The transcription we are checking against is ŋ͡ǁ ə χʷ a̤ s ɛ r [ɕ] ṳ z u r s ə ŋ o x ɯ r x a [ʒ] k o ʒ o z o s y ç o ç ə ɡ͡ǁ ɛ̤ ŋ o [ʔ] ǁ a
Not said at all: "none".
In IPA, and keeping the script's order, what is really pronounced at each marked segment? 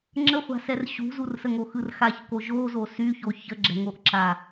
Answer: ɕ, ç, ʔ

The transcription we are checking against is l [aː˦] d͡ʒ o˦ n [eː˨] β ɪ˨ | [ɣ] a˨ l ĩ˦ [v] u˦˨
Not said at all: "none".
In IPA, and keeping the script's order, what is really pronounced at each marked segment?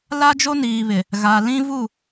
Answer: a˦, iː˨, ɣ, v

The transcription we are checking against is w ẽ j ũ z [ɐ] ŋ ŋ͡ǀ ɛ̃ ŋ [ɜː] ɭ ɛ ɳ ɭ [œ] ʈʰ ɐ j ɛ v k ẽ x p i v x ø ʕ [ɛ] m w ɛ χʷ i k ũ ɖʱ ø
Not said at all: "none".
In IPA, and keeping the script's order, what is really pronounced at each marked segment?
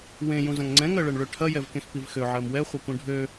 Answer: ɐ̃, ɜ, ø, ɜ

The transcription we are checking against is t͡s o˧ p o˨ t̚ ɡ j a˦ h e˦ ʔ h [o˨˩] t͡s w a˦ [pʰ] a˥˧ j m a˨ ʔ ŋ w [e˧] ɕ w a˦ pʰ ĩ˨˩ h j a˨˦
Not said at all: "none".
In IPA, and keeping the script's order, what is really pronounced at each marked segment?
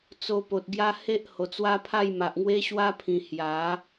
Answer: o˨˩, pʰ, e˦

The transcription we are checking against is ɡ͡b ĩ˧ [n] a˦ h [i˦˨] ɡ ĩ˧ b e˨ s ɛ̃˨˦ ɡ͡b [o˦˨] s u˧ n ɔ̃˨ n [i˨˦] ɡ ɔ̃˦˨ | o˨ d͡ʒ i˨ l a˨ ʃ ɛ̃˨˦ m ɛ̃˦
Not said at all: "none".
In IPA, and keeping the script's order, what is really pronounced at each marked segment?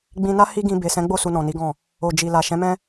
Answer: n, i˦, o˦˨, i˨˦

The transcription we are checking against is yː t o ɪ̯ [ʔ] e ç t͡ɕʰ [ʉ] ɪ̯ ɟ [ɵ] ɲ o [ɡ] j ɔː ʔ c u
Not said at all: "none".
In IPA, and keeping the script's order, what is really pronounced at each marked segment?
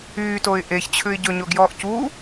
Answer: ʔ, ʉ, ɵ, ɡ

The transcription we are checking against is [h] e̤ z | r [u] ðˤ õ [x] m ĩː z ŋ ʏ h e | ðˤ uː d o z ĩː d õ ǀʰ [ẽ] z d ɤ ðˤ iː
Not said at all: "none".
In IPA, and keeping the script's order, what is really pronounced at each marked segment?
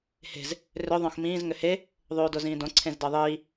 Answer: h, ʏ, x, ẽ

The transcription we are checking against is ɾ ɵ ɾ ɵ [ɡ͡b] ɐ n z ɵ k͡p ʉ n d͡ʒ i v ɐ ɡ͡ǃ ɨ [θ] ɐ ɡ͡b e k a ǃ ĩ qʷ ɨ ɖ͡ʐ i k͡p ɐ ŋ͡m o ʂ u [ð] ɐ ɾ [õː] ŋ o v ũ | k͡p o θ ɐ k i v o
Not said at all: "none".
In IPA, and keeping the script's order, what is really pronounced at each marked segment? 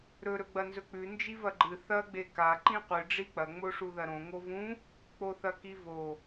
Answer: ɡ͡b, θ, ð, õ

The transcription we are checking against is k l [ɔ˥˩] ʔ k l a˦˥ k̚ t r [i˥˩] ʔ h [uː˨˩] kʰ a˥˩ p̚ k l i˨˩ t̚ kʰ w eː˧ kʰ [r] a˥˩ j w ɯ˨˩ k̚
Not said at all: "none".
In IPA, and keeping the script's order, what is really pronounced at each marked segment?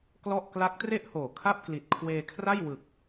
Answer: ɔ˥˩, e˥˩, oː˨˩, r

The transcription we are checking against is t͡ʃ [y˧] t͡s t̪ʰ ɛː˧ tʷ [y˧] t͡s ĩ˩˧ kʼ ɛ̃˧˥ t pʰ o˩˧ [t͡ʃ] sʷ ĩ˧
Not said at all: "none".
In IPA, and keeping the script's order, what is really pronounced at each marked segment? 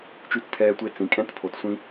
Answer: y˧, e˧, t

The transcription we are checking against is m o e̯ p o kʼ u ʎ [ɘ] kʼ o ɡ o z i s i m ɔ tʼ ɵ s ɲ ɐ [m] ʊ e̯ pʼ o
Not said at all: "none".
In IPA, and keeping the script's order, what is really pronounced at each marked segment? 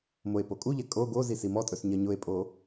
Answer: ɛ, ɲ

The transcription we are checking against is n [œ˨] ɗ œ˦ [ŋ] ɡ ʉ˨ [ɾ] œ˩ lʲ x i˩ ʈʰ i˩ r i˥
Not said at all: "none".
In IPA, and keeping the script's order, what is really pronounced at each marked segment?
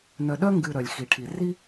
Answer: œ˨, ŋ, ɾ

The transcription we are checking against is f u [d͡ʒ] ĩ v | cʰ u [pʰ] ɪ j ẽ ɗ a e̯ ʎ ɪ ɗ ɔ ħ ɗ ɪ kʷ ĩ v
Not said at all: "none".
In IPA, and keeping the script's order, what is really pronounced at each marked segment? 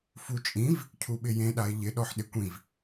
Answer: t͡ʃʼ, ɓ

